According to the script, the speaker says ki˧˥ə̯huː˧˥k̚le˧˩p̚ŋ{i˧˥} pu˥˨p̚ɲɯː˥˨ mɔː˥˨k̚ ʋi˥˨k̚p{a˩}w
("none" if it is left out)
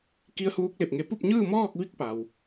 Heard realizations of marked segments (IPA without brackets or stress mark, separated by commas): e˧˥, a˩